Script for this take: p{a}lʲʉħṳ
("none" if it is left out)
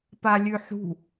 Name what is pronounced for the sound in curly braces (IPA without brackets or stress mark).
a